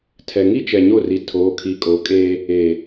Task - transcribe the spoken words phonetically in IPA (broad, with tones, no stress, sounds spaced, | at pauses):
tʰ ɛ˨ ŋ i˦ t͡ʃ ɛ˨ ɲ o˦˨ r i˨ tʰ oː˨˦ kʰ i˨˦ kʼ o˨˦ kʼ eː˦ | eː˨